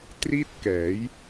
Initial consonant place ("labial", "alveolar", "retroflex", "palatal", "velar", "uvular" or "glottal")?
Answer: alveolar